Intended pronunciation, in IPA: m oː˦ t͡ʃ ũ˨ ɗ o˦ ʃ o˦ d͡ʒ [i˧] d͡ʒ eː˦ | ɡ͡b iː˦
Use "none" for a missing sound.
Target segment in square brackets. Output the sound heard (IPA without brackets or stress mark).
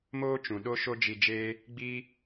i˧